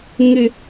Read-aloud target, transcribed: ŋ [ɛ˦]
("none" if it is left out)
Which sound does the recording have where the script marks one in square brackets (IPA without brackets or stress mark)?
ɪ˦